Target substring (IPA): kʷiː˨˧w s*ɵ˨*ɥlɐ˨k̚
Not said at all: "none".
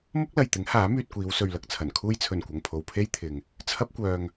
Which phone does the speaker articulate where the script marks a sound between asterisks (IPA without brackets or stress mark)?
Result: ɵ˨